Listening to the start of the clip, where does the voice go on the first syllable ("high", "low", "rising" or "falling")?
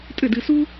falling